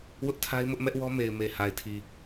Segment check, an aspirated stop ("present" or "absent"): present